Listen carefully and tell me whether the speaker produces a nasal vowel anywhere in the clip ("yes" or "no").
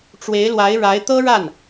no